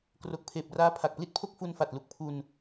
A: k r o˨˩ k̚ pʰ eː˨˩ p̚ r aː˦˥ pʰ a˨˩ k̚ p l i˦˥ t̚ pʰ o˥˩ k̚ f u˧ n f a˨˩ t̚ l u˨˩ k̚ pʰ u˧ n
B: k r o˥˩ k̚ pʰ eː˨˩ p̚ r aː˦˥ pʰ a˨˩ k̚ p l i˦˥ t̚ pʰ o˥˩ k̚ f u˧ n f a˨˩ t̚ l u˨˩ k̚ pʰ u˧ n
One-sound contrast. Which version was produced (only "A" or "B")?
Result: A